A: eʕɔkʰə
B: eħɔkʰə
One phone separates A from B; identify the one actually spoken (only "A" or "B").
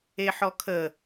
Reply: B